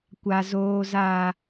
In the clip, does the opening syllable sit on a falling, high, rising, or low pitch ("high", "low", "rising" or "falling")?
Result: low